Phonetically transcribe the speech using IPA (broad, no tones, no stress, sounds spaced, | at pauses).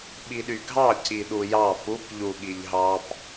ɓ i ɗ y ɡʱ ɑ c i ɗ u j ɑ p u p ʎ u ɠ i ʎ ɦ ɑ p